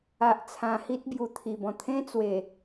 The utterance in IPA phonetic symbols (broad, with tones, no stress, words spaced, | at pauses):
a˨ʔ t͡sʰã˧hi˦t̚ bju˨˩t̪ʰi˨˩bɔ̃˨˩ t̪ʰẽ˦t͡swe˨˩